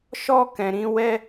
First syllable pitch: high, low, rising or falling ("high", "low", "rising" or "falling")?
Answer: high